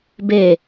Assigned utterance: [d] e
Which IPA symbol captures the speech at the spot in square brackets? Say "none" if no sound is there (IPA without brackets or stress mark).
b